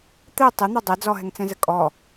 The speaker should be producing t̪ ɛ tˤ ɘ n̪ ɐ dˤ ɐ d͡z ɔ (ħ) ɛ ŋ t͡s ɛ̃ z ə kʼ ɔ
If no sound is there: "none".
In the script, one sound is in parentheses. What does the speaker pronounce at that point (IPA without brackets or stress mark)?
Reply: ɦ